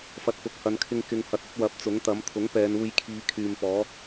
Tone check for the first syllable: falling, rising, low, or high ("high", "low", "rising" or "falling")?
low